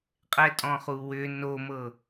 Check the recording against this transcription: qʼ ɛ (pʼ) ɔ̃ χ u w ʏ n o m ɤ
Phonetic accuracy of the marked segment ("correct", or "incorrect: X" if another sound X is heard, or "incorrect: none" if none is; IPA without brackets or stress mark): incorrect: tʼ